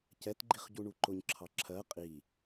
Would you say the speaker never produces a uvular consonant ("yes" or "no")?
no